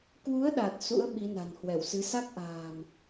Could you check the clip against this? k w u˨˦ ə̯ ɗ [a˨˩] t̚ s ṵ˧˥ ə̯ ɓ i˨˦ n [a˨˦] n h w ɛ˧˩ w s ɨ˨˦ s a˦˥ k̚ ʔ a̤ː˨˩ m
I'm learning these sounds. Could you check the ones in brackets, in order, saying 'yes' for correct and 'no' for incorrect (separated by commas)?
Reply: yes, no